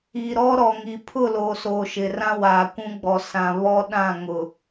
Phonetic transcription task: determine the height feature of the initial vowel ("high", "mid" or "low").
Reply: high